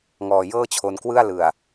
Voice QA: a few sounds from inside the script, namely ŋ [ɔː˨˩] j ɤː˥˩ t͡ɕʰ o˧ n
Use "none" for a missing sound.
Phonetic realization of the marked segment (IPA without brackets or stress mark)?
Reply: ɔː˨˩